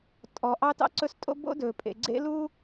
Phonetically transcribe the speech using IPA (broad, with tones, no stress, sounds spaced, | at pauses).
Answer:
tʼ ɔ˨ ʔ ɑ˦ t ɑ̰˦ ǀ ɵ˦ s tʼ o̰˦ b o̰˦ d ɵː˨ pʼ ḛ˨ ɡ͡ǀ ḛ˦ l u˦